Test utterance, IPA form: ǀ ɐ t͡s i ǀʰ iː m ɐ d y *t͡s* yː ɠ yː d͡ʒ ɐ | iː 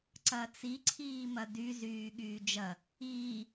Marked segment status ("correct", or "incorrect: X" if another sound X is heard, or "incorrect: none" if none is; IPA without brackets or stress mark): incorrect: z